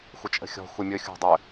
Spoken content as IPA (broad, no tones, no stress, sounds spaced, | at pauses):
xʷ ə t͡ʃʼ ə̤ xʲ ɔ̤ xʷ ɘ mʲ ɵ xʲ o̤ dˤ ɵ